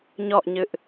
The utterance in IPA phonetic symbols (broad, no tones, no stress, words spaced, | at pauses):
ɲɔʔɲɨʔ